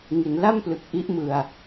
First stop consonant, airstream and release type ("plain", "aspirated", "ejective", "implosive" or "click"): plain